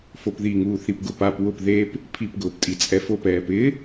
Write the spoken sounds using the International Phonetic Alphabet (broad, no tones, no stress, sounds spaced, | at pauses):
f o p ð i ŋ uː θ i p ɡ ʊ p a p w ʊ p ð e p | pʰ i p ɡ ʊː p tʼ i t͡sʼ ɛ f o p ɛː p ɪ